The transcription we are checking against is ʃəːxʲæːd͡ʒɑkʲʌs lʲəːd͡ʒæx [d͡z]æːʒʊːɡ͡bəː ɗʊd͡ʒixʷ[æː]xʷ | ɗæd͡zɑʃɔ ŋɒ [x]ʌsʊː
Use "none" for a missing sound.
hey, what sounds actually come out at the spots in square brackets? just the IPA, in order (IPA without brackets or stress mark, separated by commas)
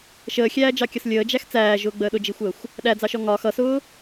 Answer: t͡s, əː, x